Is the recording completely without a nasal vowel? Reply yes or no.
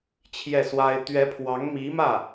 yes